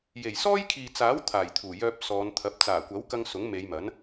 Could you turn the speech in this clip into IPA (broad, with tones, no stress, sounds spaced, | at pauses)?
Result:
j e˨˩ j s ɔː˥ j kʰ iː˨ t͡s aː˨˥ w t̪ʰ aː˨˩ j t̪ʰ uː˨˩ j œː˧ p̚ s ɔː˨˧ n t̪ʰ ɐ˨˥ p̚ t͡s aː˨˩ kʷ ɐ˨˥ w k ɐ˧ ŋ s ʊ˨˥ ŋ m e˨˧ j m ɐ˨˥ n